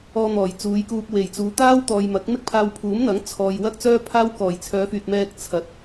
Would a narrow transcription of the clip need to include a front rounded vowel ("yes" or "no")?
yes